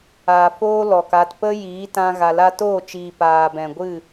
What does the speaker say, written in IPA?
aː˨ f oː˦ l ɔ˨ k a˧ t p ə˦ j iː˨˦ t ã˧ ɣ a˨ l a˦ t oː˦˨ t͡ʃ iː˨ p aː˨ b ɛ̃˨ ɡʷ ɨ˦˨

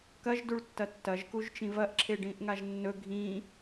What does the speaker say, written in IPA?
k ɐ ʒ d u ɭ tː ɐ tː ɐ ʒ k u ʒ t͡ʃ ĩ v ɐ ʔ ǁʰ e ɖ ĩ ʔ ŋ a ʒ nː ɵ ɡʱ ĩ

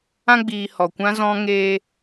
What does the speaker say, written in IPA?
ã˧ ɡ͡b iː˨ h ɔ˨ kʷ ã˦ z ɔ̃˦ ŋ eː˧

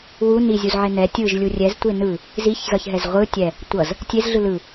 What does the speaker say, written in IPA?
w u n i zʲ u z ʕ e n ɛ tʲ ɯ ʒ lʲ u rʲ ɛ z tʷ e n ɯ | z i ç z ʌ ç ɦ ɛ z ʁʷ ɯ tʲ ɛ | tʷ ʌ z | tʲ e z ɮ ɯ l ɯ

